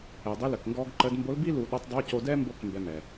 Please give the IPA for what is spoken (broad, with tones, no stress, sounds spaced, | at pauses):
ɛ˩ dˤ i˧˥ l ə˩ k ŋ ɡ ɔ˧ ɡ ǃ ə˧ d m b o˧˥ l b i˥ l u˧ ɗ ə˧˥ tˤ dˤ o˧˥ c o˧ d ɛ˥ m b o˥ k m b ɛ˧ m ɛ˩